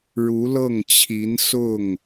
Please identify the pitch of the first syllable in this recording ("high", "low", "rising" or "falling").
rising